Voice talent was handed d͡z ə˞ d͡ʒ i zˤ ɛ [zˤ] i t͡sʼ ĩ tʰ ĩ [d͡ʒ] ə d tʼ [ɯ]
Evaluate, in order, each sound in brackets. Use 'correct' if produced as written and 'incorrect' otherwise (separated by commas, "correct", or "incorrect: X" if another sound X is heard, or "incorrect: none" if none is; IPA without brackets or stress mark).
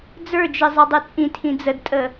incorrect: dˤ, incorrect: d͡z, incorrect: ə